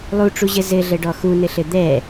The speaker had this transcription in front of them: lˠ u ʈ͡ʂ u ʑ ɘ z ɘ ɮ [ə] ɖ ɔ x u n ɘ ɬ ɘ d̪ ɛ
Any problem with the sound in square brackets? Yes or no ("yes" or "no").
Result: no